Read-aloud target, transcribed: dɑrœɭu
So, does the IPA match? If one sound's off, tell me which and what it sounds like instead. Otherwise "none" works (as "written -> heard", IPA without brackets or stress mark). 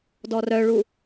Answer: ɑ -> ɔ